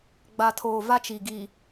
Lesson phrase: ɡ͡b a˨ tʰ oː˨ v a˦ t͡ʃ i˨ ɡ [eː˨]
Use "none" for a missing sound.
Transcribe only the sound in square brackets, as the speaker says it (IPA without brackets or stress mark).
iː˨